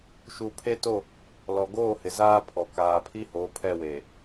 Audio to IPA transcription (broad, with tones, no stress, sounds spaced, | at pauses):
ʃ u˨ pʰ e˦ t o˦˨ | l ɔ˨ ɡ oː˦˨ h ɪ˨ z aː˦ pʰ ɔ˨ k aː˨ pʰ i˦ h o˨˦ pʰ ɛ˦˨ w e˨